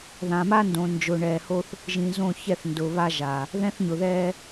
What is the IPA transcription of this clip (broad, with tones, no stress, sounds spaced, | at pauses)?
ð ã˨ m a˦ n d õ˨ n d͡ʒ ʊ˨ ɳ ɛː˨ h o˦ θ | ʒ ĩ˨ z õ˦˨ ç ɛ˦˨ θ n d ʊː˨ β a˦ ʒ a˨ | ð ɛ̃˦ θ ɲ ʊ˨ ð ɛː˦